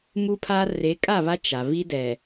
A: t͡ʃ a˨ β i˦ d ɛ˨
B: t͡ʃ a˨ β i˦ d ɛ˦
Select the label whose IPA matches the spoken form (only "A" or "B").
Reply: A